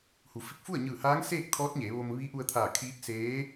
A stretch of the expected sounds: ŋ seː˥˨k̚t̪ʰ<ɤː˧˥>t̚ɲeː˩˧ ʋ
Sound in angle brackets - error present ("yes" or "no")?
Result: yes